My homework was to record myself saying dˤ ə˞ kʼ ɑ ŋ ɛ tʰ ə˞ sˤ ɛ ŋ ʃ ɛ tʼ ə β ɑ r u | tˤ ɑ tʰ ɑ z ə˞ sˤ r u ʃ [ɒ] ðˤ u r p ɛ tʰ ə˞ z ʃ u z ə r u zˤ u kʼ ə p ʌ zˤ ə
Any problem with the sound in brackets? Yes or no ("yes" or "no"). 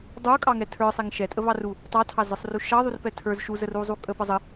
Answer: yes